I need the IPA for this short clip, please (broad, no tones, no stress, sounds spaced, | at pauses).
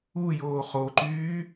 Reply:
u j oː χ o ǃ yː